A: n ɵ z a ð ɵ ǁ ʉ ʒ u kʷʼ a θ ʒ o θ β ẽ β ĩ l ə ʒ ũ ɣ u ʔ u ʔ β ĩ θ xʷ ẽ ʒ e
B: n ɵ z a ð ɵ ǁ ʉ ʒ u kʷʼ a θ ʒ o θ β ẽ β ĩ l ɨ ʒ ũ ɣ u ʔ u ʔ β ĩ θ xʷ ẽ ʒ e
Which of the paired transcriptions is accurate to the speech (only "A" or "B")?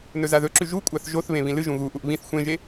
B